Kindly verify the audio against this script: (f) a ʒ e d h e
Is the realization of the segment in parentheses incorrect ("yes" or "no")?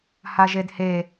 yes